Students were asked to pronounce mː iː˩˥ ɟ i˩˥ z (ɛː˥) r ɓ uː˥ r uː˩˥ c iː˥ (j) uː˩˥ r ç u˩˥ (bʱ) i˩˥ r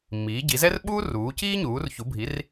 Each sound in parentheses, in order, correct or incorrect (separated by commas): incorrect, incorrect, correct